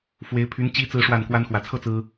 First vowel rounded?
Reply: no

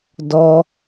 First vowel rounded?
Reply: yes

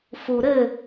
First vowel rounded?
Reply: yes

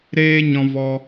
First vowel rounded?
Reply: no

